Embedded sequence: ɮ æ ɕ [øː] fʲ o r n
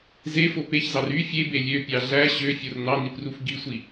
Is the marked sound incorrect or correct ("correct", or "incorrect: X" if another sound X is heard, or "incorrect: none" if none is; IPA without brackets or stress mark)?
incorrect: ø